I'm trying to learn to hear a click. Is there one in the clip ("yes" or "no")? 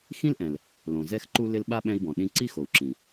yes